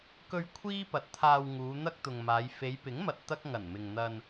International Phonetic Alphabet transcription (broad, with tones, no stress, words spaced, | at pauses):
kɵ˧ɥ kʷʰiː˥pɐ˨t̚t̪ʰaː˧w ŋuː˨˧n̪ɐ˥k̚t̪ʊ˨ŋmaː˨˧j fe˨˧jpɪ˨˥ŋmɐ˨t̚ t̪ɐ˥k̚ ŋɐ˨˩nmɪ˨ŋn̪ɐ˧n